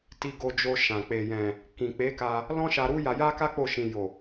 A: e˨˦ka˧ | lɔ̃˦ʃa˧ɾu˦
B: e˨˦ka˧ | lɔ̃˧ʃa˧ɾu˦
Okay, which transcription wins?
A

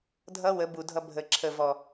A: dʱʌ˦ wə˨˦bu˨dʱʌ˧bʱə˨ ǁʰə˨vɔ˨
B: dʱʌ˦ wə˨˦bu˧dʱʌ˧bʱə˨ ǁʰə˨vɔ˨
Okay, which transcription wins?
A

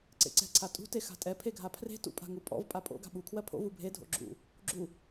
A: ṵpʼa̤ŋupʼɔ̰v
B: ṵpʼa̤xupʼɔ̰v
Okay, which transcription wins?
A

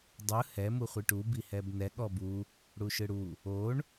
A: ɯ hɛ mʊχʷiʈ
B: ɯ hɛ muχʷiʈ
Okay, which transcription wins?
B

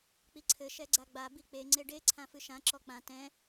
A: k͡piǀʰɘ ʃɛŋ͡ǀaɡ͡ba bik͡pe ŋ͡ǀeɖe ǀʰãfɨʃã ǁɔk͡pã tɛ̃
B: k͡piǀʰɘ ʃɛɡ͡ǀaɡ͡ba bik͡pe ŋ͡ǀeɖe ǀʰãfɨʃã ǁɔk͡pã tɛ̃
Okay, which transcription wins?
B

